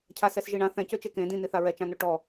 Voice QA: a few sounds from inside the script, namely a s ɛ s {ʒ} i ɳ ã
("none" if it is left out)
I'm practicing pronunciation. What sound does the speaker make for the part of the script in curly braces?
ʒ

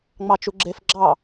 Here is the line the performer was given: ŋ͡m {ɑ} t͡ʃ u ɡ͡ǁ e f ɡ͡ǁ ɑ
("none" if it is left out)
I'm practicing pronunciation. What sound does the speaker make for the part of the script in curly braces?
ɑ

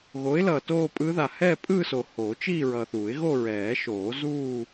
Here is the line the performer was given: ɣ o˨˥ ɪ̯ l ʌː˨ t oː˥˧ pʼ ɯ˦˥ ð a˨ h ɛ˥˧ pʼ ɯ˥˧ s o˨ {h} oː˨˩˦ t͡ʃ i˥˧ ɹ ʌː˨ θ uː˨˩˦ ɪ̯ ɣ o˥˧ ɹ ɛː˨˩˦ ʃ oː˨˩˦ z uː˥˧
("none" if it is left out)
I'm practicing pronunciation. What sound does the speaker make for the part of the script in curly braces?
h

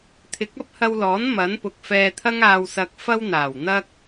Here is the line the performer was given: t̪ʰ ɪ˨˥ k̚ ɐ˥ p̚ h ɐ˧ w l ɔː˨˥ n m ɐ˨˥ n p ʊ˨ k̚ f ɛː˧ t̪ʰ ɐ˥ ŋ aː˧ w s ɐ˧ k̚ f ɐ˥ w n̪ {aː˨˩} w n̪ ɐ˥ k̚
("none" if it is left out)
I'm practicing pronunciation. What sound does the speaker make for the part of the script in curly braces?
aː˨˩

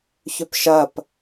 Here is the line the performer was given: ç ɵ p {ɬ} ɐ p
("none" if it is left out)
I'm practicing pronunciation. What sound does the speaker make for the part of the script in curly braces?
ʃ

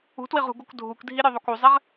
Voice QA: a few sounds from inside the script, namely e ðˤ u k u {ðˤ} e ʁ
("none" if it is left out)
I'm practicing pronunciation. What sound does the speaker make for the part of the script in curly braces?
zˤ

